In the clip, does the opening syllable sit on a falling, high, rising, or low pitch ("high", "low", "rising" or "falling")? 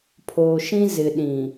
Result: low